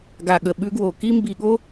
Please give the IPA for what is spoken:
ɡ a˨ ɠ ə˨ ɓ ʉ˧ ɡ w o˨ k i˦ m b i˧ ɠ o˦

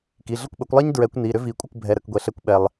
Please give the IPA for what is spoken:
k i˩˧˩ ɮ ə˥˩ kʷ ɓ ə˨˩˦ kʷ lˠ ɛ˥ ɲ d ɹ ɛ˨˩˦ kʷ n i˩˧˩ ɾ ʏ˥ v i˨˩˦ kʷʼ ə˥˩ kʷ bʱ ɛ˩˧˩ ɾ ə˩˧˩ k ɡʷ ɛ˩ ɬ ɛ˨˩˦ kʷ ɓ ɛ˩ lˠ

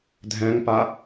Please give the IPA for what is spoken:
dʱ ɛ̃ ŋ p a

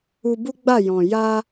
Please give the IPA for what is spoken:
u˧ b u˦ ɡ͡b a˦˨ j ɔ̃˨ j a˧

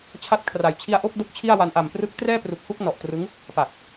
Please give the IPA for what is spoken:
t͡ɕʰ a˦˥ t̚ kʰ r a˨˩ j t͡ɕʰ i˧ a̯ ʔ o˥˩ k̚ d o˥˩ k̚ t͡ɕʰ i˥˩ a̯ w a˧ n ʔ a˨˩ m p r ɯ˦˥ k̚ t r ɛː˥˩ p r u˨˩ k̚ h u˥˩ k̚ n ɔ˨˩ ʔ t r ɯ˦˥ ŋ | p a˨˩ k̚

